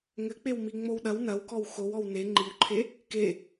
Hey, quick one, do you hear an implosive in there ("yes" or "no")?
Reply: yes